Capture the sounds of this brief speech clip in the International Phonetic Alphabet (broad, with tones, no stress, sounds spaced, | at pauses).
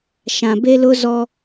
ʃ ã˨ b e˦ l ʊ˦ z ɔ˦